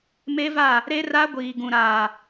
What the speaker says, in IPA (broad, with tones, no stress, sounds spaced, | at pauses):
m e˦ v a˦˨ | ɾ e˦ r a˦ ɡʷ iː˨ ɡ ũ˨ ɾ aː˨